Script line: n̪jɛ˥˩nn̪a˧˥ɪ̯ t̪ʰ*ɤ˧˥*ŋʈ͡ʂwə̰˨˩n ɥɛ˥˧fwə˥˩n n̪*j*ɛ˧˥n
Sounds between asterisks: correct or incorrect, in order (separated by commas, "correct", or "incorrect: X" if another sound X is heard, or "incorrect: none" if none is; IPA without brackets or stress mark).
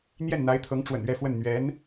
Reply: correct, incorrect: ɥ